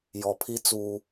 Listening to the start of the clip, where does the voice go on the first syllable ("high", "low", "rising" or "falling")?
low